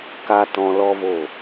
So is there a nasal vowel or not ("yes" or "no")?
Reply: yes